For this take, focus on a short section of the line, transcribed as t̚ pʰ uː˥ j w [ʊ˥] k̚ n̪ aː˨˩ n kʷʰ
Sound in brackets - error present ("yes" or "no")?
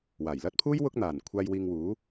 no